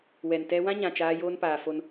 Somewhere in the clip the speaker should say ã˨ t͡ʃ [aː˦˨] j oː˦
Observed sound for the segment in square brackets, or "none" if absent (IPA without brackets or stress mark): aː˦